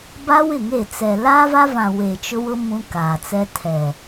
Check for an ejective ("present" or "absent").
absent